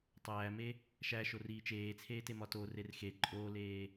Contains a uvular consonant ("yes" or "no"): no